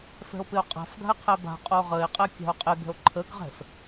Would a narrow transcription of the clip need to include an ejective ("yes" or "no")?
yes